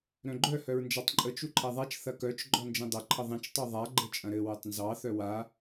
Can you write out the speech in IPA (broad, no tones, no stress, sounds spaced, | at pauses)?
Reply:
ɾ œ̃ ɡ͡ǃ œ h œ ɹ n d͡ʒ a tˤ ǃʼ ə t͡ʃ u ǃʰ ɛ ðˤ a t͡ʃ θ ɐ k œ t͡ʃ ɡ͡ǃ ɔ n d͡ʒ ĩ dˤ ɐ ǃʰ ə ðˤ ĩ t͡ʃ tˤ u ðˤ a ɡ͡ǃ ə t͡ʃʼ ɐ̃ ɾ ɘ w ə tˤ n z ɑ θ œ w a